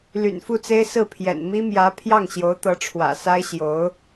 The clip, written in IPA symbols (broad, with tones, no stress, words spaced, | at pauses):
ly̰˨˩nfu˥˩t͡se˥ɪ̯ sɹ̩˥˩pʰjɛ̰˨˩nmi˥ mjä˧˥ pʰjɑ˥˩ŋɕjo˧˥ʊ̯t̪ɤ˧˥ʈ͡ʂʰwä̰˨˩ sa˥ɪ̯ɕjo˧˥ʊ̯